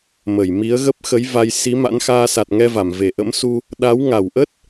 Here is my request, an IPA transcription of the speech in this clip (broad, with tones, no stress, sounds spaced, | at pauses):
m ə˧˩ j m i˨˦ ə̯ ɣ ə˦˥ p̚ x ə˨˦ j v a˧ j s i˨˦ m a̰˧˥ n x aː˧ s a˨˩ t̚ ŋ ɛ˧ v a˧˩ m v e˧˩ ʔ ə̰˧˥ m s u˧ | ɗ a˨˦ w ŋ a˧˩ w ʔ ə˦˥ t̚